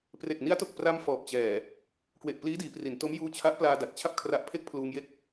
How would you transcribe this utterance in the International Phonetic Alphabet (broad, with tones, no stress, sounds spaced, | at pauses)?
p r e˨˩ k̚ n i˦˥ a̯ t o˨˩ k̚ p r a˧ m f ɔː˨˩ p̚ t͡ɕ ɛː˨˩ | k w e˨˩ ʔ p l iː˦˥ d iː˩˦ p r i˩˦ n t o˦˥ m j uː˧ t͡ɕʰ a˦˥ ʔ p l aː˧ d a˨˩ t̚ t͡ɕʰ a˥˩ p̚ kʰ r a˦˥ ʔ pʰ e˥˩ k̚ pʰ l uː˧ ŋ j e˥˩ k̚